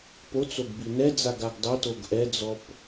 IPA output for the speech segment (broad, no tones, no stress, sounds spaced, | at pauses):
p o t͡s o ɡ b i n ɛ d͡z a ɡ a ɡ dˤ ɤ t o ɡ ʔ ɛ d͡z ɔ p